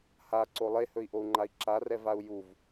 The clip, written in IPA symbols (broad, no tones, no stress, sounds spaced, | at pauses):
h a ǀ o lˠ e h ɵ i̯ ʔ o u̯ ŋ͡ǃ a i̯ ǁ a r ɛ v a u̯ j u v